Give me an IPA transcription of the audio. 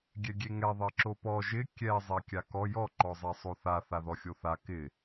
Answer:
ɡʲɛɡʲeŋɛ ðˤɪǁopɔ ʒɪ kʲɛ zˤɛkʲakɔ jɔ ǃɔzˤɛsˤoθa θaðɔxʲoθa kɪ

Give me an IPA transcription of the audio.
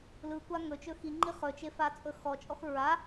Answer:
lɯkʷa ŋɵt͡ʃɵ xiŋ͡ǃi χɵt͡ʃefat͡sʼɵ xɔt͡ʃʼɔx ɹa

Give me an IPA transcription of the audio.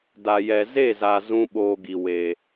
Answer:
da˨jɛ˨ ze˦˨za˨ zũ˦ɓoː˧ɡi˨ we˨

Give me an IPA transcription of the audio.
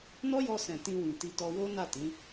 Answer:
nɔ˦jɔ˧sɛ̃˨ tĩ˧wĩ˨ti˧tɔ˧ wo˦na˦˨tĩ˨˦

